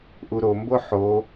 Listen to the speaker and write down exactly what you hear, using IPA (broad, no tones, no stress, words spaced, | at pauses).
ʔuɾombo ħo